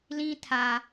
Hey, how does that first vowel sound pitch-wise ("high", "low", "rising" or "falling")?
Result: high